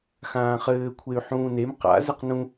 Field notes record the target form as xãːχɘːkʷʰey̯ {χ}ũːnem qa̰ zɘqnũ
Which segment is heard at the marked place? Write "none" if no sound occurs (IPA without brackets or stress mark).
ħ